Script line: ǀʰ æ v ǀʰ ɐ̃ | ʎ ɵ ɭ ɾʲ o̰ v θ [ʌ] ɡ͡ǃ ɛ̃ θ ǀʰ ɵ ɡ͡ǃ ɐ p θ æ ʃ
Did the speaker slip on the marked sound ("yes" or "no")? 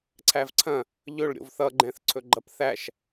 no